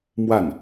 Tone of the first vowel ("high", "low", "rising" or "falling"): falling